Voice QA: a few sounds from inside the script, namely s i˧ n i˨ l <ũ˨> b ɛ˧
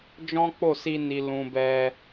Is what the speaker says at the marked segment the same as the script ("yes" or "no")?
yes